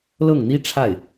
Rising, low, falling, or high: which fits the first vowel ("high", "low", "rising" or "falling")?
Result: falling